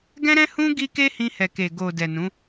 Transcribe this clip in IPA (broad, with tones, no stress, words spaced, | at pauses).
ɡɛ̃˦ɾɛ̃˦hũ˦ ɡi˦ ke˦hĩ˧ hɛ˨ke˨ ɡo˨ dɛ˨nũ˨˦